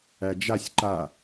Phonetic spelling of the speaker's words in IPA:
æ d͡ʒ a sʲ ǃ a

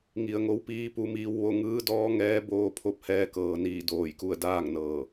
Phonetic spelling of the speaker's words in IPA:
ŋ i˩ ə̯ ŋ o˧˥ w p iː˧˥ p u˩˧ m iː˧ w ʋ o˥˨ ŋ ɯː˧˥ d ɔː˧˥ ŋ ɛː˧˥ b oː˧ pʰ o˧˥ p̚ h ɛː˧ k ɤː˩ n iː˧˩ d oː˧˩ j k u˥˨ ə̯ d aː˥˨ ŋ n ɤː˧˩

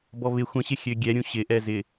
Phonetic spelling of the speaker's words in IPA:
b ɔ β ɪ xʷ ə̃ ɕ ɪ xʲ ø ɡʲ ɛ ɾʲ ũ ɕ ɪ ʔ ɛ z ɪ

